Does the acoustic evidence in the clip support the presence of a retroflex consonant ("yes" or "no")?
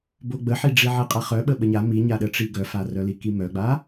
yes